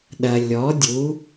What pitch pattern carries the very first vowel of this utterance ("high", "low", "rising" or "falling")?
low